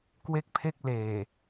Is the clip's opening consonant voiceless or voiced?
voiceless